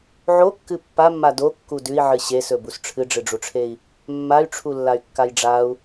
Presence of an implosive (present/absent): absent